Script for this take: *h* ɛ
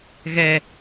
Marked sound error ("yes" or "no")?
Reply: yes